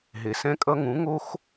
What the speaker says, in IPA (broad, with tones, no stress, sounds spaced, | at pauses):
ɦ e˨ s ɛ̃˦ kʼ ʌ˦ ŋ ũ˨˦ ŋ o˦ x